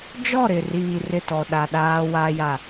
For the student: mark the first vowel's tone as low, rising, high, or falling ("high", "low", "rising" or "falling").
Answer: falling